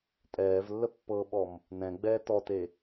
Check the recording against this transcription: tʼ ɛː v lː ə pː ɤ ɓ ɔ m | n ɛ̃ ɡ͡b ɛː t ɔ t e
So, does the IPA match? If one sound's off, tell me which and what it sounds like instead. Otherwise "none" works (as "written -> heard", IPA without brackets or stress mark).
none